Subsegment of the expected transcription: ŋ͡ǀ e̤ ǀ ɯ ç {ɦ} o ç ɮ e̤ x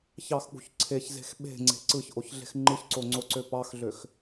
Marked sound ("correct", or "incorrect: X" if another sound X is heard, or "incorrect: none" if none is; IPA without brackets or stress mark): incorrect: ʔ